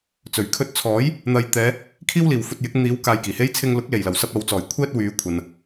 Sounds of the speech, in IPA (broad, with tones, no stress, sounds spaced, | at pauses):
t͡s ɵ˨˩ ɥ kʰ ɵ˧ t̚ t͡sʰ ɔː˨˥ j | n̪ ɐ˨ j t̪ ɛː˨˧ | kʰ iː˥ w l iː˨ w f ɵ˧ t̚ j ɪ˨˥ k̚ n̪ iː˨˥ w k aː˧ j k iː˨˩ h e˥ j t͡sʰ ɪ˧ ŋ l ʊ˨˥ k̚ l e˨˩ j l ɐ˨˩ w s ɐ˧ p̚ ɐ˨ w t͡s ɔː˨˩ j kʷʰ ɛː˥ t̚ w yː˨˧ kʷʰ ɐ˨ n